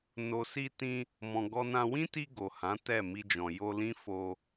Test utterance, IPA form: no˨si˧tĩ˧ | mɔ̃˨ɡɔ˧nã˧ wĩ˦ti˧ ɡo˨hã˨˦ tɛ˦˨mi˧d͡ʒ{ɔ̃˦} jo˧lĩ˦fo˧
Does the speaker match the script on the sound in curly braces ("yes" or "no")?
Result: no